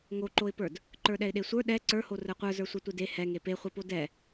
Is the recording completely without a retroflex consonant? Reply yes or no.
yes